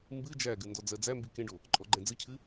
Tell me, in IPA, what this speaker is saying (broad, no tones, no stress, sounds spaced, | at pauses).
m b ɨ d͡ʒ æ ɡ ɨ n d ɔ d͡z ɜ d͡z æ m b i k ẽ ɖ o | ǃʼ ɔ ɡ͡ǃ ɛ̃ d͡z ɨ cʰ ɨ